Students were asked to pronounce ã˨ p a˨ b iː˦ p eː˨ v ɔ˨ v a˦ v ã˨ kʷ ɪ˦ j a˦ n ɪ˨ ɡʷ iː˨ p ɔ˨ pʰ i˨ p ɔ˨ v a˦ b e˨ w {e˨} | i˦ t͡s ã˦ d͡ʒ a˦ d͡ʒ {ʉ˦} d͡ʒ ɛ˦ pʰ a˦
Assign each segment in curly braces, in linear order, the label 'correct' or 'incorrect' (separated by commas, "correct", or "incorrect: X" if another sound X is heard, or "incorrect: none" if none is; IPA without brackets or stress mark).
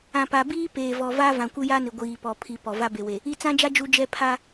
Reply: correct, incorrect: u˦